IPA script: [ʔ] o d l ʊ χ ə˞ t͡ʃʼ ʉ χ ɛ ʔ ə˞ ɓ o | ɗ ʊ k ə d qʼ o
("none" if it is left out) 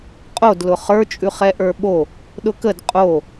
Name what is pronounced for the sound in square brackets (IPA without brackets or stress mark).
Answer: qʼ